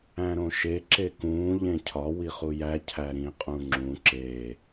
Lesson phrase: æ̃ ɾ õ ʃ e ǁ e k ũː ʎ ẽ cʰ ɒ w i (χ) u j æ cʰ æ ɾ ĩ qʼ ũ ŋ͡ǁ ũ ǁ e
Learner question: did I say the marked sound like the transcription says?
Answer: yes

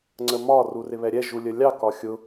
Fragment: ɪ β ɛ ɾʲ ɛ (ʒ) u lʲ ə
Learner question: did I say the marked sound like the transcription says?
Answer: yes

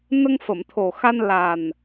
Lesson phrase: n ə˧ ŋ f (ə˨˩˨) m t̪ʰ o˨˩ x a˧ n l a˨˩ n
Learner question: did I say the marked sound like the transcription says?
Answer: yes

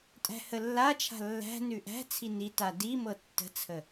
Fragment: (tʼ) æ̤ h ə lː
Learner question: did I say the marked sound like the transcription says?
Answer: yes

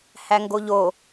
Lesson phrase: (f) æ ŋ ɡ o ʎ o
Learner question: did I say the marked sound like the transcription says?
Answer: no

